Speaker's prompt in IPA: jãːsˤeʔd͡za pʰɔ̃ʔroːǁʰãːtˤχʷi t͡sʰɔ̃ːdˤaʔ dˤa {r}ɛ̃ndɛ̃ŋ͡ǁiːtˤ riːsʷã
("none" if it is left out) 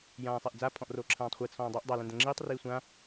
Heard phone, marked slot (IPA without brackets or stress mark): l